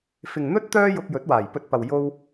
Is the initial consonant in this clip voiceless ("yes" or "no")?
yes